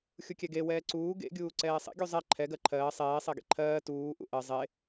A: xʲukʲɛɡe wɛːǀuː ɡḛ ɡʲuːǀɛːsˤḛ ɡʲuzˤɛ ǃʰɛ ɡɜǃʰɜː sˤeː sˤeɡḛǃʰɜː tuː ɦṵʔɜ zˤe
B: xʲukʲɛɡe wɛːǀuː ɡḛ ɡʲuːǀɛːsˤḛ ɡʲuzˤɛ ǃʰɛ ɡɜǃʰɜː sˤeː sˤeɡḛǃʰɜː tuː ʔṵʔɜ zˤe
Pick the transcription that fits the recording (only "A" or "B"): B